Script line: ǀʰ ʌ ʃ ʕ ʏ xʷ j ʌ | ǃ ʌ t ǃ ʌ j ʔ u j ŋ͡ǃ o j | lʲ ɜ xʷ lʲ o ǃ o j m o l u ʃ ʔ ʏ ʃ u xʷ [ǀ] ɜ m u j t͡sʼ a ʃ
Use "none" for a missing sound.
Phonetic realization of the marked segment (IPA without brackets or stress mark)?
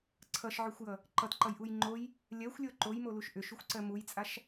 ǀ